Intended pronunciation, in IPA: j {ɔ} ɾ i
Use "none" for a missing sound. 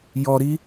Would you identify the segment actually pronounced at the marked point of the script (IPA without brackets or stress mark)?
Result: ɔ